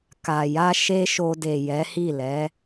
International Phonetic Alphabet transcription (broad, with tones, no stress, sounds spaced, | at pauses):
k a˨ j a˧ ʃ e˧ ʃ o˧ d e˨ j ɛ˨˦ h i˦˨ l ɛ˨˦